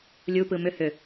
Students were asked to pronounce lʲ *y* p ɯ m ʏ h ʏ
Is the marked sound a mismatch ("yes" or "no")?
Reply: yes